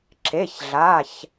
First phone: ǁ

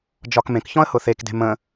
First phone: d͡ʒ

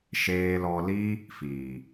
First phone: ʃ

